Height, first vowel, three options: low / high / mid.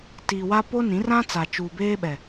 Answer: high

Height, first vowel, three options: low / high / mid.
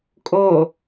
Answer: mid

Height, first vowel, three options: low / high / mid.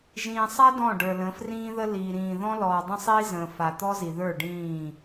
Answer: high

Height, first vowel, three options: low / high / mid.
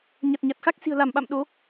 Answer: low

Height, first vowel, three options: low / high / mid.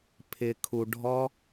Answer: high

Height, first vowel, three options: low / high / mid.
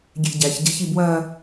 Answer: mid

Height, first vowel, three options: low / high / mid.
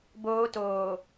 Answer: mid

